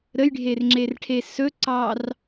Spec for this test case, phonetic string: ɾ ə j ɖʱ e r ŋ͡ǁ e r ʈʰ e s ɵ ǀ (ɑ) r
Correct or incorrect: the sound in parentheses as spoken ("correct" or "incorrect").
correct